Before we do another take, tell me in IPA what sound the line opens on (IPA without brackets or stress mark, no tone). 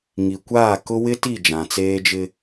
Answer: ŋ